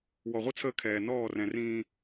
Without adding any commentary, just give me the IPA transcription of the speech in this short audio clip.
wɔ˨ʁʷi˦t͡sʰəː˦ kʰɛː˨ nɔː˦˨rɛ̃˨rĩː˦

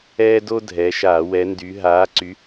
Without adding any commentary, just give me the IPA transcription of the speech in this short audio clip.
ɛː˦do˦ dʱɛ˨˦ʃaː˧˩˧wɛ˨˦ndy˨˦ ɦaː˨˦ǀy˨˦

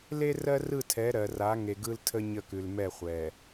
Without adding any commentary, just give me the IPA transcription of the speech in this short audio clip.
le˦rɜ˦rɯ˦˨tʰɛ˨˦ ɾɜ˨ra˨˦ ŋe˨ɡɯ˦ltʰə˦ ɲə˦˨kʉ˨lmɛ˦˨ χʷɛ˨

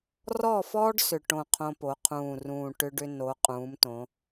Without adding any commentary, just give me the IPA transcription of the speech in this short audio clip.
rɔ˦˨fɔ˦ɖ sʏ˨˩ ʈõ˦˨qʰõ˦po˩˧ qʰũː˨˩rũː˨˩ ʈʏ˦ɖʏ˦ no˩˧qʼũː˩˧mtõ˩˧

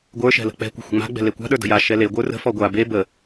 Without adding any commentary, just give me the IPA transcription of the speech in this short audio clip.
ɡʷə˞ ʃɛ̤lə̤k͡pɛ̤kʷə̤ xʷə̤ŋ͡ma̤ɡ͡bɛ̤ lekʷa̤ɗə˞ də̤ja ʃɛle ɡʷə˞rə̤fɔ ɡʷa be bə

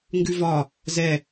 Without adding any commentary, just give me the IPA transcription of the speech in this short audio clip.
ŋɡʉvɒ | zɛ

